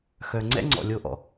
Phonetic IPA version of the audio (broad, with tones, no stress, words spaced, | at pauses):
xœ˨ ŋ͡ǀɛ̰˦ŋ͡ǀɔ̰˨ lʲo˧ʔɔ̰˨